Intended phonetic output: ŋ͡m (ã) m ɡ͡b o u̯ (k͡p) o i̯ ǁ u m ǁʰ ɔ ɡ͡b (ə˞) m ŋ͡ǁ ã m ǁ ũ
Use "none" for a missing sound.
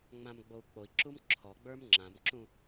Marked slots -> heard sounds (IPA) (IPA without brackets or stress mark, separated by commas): ã, k͡p, ə˞